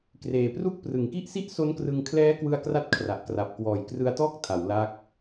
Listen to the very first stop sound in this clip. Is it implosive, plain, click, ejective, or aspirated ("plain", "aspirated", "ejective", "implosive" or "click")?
plain